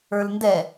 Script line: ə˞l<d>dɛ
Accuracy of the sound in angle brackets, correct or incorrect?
incorrect